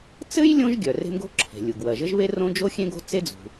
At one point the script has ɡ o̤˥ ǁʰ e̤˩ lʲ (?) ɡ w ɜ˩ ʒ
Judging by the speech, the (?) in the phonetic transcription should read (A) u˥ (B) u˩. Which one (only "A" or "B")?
B